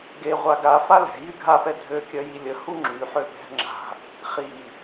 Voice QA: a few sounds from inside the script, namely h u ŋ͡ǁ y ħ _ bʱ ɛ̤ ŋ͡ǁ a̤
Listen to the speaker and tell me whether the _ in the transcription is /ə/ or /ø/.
ø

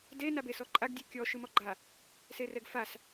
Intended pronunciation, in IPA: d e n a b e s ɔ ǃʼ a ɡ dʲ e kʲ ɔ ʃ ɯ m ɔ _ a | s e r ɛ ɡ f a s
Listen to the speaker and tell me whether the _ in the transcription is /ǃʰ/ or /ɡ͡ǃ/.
ɡ͡ǃ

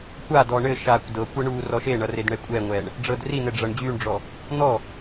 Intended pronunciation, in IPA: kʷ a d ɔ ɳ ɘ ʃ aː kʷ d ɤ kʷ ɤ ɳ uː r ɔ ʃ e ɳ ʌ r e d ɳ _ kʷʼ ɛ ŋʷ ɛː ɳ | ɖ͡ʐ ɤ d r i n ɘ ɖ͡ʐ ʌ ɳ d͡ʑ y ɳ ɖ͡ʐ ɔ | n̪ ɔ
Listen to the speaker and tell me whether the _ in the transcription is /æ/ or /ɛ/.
ɛ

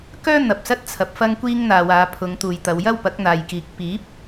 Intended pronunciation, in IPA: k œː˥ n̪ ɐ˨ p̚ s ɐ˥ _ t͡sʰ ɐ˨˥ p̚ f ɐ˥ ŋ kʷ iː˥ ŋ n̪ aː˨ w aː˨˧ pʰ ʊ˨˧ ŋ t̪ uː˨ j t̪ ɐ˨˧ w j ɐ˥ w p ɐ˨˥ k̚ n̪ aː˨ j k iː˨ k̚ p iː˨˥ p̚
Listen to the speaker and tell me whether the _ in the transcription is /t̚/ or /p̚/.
t̚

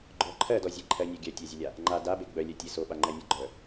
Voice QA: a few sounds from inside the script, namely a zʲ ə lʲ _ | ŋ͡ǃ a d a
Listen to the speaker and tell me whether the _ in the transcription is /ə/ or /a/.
a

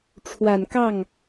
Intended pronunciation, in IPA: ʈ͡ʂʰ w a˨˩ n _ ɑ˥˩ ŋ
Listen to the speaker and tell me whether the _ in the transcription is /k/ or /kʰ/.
k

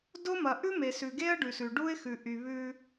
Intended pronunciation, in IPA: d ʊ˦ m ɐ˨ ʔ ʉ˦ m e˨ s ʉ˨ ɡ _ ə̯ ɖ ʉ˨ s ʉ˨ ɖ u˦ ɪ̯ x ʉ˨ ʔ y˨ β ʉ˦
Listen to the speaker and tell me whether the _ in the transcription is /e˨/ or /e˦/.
e˦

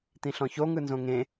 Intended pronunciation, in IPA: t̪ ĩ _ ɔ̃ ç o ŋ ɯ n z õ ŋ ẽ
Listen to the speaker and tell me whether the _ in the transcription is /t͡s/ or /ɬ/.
ɬ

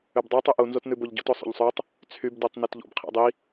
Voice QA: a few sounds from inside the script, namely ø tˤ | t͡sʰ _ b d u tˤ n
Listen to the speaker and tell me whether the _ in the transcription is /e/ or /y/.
y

